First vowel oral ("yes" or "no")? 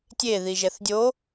yes